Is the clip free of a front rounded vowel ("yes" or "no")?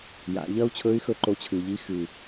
no